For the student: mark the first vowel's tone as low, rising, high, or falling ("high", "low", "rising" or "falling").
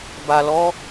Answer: low